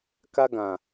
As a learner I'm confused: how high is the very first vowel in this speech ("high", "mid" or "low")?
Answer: low